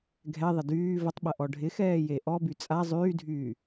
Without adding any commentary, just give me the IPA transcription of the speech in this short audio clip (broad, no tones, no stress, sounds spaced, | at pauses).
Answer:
ɡʱ ɛ ðˤ ɪ d yː v ə tˤ ɓ ɐ ʔ ɔ ɖʱ ɪ x ɛː j e ʔ ɔ b y t͡sʼ a zˤ yː dʱ yː